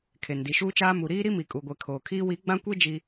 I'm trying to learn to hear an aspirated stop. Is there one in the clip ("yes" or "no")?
yes